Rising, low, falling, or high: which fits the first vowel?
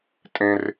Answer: high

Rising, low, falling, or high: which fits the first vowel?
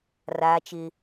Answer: high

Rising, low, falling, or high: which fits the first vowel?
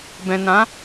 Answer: low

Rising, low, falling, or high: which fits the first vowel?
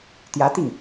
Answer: rising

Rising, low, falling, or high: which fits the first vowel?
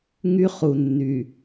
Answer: high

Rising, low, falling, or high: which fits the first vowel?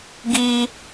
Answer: high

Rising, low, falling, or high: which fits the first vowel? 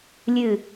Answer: falling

